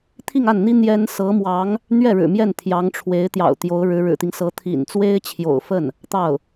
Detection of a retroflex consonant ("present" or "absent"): present